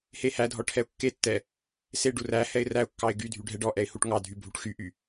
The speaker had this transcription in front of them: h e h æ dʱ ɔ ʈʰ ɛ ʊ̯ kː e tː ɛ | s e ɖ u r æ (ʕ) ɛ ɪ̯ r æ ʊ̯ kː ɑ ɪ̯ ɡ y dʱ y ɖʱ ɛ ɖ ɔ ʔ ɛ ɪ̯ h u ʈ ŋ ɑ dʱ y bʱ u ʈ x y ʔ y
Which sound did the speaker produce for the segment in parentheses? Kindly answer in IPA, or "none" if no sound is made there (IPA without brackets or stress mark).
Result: h